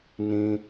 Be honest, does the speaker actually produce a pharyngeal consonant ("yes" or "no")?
no